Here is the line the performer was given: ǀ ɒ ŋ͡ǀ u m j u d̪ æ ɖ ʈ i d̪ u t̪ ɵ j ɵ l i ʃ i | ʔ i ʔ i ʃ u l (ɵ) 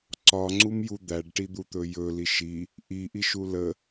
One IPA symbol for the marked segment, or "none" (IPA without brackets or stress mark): ə